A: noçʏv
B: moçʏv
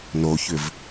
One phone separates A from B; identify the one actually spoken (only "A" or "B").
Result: A